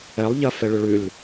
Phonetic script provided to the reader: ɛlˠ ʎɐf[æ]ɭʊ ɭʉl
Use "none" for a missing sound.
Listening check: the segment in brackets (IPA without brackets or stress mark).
ɛ